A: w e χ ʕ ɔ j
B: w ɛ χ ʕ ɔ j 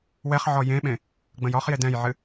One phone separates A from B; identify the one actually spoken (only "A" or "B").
B